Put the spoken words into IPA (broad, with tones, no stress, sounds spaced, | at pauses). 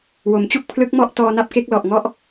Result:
w o˩˦ m t͡ɕ u˥˩ k̚ pʰ l ɯ˦˥ k̚ m ɔ˥˩ ʔ t ɔː˧ n a˦˥ p̚ k e˦˥ k̚ l ɔ˨˩ ʔ ŋ ɔ˦˥ ʔ